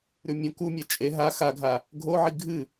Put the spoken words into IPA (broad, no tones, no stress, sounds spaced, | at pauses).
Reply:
ɾ ʉ mʲ õ k u mʲ a t͡ʃʼ e ɦ a x a ɡʱ a | ɡʱ o ʕ i ɡʱ ɨ